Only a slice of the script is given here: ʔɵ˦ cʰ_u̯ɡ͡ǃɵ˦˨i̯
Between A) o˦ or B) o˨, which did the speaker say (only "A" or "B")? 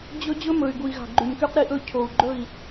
B